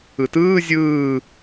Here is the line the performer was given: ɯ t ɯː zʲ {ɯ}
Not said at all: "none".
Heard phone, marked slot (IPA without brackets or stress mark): ɯː